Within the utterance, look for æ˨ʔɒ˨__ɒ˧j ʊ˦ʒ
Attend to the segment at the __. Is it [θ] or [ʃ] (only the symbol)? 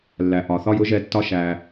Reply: θ